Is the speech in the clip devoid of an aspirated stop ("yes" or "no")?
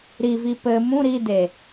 yes